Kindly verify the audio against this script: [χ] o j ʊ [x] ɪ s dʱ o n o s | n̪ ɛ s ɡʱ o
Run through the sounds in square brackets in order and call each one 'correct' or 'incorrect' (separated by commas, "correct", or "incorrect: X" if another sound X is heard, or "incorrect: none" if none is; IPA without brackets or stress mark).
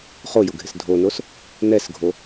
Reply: correct, incorrect: ɡʱ